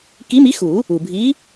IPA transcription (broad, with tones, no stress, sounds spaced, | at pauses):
k i˨˥ m i˨˥ x u˨˩˦ | u˩ bʱ i˨˥